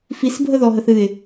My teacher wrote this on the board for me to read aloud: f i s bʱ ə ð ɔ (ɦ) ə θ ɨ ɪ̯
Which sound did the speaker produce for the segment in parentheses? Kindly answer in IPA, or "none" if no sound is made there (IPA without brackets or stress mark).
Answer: ɦ